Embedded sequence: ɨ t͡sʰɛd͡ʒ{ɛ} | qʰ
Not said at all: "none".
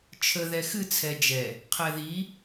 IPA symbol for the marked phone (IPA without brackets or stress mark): ɛ